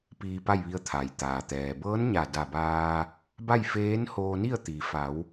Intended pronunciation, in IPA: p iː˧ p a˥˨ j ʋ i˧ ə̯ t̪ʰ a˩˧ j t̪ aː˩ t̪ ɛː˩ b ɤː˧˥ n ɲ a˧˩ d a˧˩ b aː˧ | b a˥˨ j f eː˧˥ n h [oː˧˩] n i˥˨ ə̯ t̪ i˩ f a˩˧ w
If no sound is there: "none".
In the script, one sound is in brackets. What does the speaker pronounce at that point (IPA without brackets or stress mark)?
oː˧